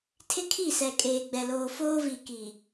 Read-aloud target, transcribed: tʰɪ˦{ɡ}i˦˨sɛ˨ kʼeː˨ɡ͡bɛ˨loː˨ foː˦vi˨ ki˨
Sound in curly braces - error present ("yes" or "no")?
yes